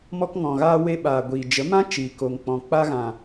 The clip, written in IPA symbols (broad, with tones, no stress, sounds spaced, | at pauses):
m ɔ˧ k ŋ ɔ̃˨ ɣ aː˧ w e˧ ɓ aː˨ ɡʷ iː˨ d͡ʒ ə˨˦ m ã˦ t͡ʃ iː˨ k o˨ ŋ k͡p ɔ̃˨ k͡p a˧ ɣ ã˨